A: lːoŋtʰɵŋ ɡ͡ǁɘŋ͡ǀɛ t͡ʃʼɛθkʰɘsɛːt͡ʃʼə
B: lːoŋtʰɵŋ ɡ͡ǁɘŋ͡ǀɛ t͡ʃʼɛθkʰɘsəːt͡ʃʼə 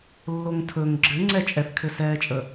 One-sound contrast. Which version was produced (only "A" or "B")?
A